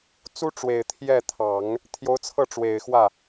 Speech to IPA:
t͡s u˥ ʈ͡ʂ w e˨˩ ɪ̯ t̪ʰ j ɛ˥˩ t̪ʰ ɑ˨˩˦ ŋ | t̪ʰ j o˧˥ ʊ̯ t͡sʰ ɤ˥˩ ʈ͡ʂ w e˨˩ ɪ̯ x w ä˥˩

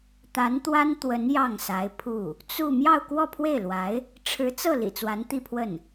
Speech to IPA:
t̪ a˧˥ n t̪ w a˥ n t̪ w ə˧˥ n j ɑ˥˩ ŋ s a˧˥ ɪ̯ pʰ u˥˩ | t͡s u˥˧ m j ɑ˥˧ ʊ̯ k w ɔ˥˧ pʰ w e˥˩ ɪ̯ l w a˧˥ ɪ̯ | ʈ͡ʂʰ ɻ̩˧˥ t͡s ɤ˥˩ l ḭ˨˩ t͡s w a˧˥ n t̪ i˥˧ pʰ w ə˥˩ n

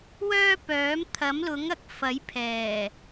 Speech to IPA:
w œː˥ p œː˨˥ m t̪ʰ ɐ˨˥ m l ʊ˨˥ ŋ ɐ˨˥ k̚ f ɐ˨˥ j pʰ ɛː˨˩

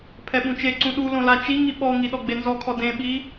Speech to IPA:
pʰ ɛ ɓ ũ t͡ʃ e ǀ ũ ɗ u l õ l a t͡ʃ i ŋ i ɓ ɔ ŋ i ɗ ɔ ɡ͡b e n z ɔ kʰ ɔ d ẽ ɓ i

